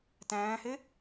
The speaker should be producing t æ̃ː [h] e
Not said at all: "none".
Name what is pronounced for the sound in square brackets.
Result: h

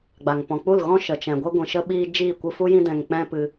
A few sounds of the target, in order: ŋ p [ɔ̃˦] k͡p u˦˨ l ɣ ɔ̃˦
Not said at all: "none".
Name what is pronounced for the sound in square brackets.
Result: ɔ̃˨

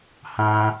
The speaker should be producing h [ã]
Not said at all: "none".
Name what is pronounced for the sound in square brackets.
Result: ã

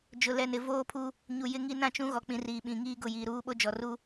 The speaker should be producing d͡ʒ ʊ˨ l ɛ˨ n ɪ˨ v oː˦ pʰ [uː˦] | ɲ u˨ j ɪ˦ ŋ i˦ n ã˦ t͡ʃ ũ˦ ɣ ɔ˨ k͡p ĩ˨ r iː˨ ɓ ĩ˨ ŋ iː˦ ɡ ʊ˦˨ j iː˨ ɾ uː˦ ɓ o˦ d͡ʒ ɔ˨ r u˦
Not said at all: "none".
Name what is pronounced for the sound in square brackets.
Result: u˦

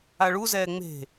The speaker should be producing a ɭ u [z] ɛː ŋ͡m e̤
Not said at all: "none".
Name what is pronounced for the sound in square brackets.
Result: z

